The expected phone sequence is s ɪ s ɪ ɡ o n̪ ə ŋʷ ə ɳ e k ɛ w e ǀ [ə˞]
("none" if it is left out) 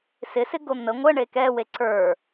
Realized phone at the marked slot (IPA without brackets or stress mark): ə˞